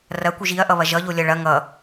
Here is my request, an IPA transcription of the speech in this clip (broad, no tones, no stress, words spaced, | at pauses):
rɐkʷiʒ iɐ̯ʔʌβɐ ʒʌʎolʲʌ ɭɐ ŋʌ